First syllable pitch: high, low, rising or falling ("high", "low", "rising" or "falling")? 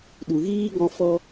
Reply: low